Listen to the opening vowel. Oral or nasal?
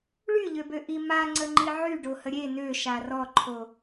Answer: oral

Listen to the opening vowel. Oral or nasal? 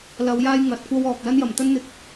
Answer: oral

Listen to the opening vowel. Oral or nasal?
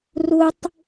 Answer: oral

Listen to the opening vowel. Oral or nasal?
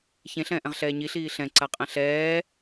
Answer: nasal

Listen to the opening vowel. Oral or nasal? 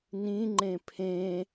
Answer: nasal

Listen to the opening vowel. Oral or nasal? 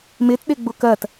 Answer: oral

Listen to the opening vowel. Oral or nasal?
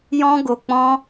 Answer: nasal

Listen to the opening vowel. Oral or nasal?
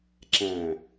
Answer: nasal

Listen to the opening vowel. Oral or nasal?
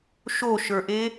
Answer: oral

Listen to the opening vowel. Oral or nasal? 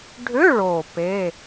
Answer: oral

